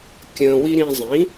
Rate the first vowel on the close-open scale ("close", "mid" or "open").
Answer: mid